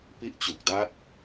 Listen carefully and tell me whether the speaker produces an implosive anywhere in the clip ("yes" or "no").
no